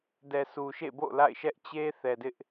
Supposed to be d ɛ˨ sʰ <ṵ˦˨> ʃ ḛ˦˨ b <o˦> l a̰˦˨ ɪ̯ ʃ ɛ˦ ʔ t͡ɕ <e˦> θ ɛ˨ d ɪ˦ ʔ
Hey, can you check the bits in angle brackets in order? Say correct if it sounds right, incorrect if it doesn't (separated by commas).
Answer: incorrect, incorrect, correct